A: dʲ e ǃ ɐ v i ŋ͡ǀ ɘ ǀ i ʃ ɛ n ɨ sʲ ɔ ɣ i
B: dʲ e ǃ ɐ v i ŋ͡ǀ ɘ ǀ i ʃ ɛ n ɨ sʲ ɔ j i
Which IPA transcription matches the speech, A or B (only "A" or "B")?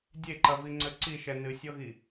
A